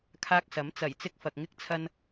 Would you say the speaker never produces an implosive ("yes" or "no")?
yes